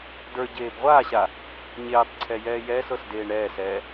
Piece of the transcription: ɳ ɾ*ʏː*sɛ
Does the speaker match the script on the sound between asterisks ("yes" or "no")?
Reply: no